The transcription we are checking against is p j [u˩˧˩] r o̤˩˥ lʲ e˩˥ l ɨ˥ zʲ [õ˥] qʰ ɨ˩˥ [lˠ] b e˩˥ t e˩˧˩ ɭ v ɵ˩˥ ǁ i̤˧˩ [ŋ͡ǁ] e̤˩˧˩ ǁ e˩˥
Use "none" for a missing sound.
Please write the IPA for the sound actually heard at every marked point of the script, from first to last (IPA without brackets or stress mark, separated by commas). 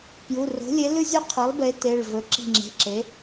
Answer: u˩˧˩, o˥, lˠ, ŋ͡ǁ